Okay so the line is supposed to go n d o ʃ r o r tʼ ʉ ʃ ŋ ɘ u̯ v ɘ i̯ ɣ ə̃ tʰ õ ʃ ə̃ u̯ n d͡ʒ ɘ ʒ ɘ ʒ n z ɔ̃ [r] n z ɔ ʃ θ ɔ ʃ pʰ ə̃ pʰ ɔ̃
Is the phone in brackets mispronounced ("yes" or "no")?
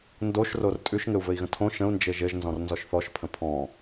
no